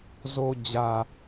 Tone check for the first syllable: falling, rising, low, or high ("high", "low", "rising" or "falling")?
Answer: low